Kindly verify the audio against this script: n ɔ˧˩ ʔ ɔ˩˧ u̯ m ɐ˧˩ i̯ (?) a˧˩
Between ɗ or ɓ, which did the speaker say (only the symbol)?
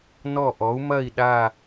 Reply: ɗ